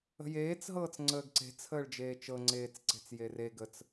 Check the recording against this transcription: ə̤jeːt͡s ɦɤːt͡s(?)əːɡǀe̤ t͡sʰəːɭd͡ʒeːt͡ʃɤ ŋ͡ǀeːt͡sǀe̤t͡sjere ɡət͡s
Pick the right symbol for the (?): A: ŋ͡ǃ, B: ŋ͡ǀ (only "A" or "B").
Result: B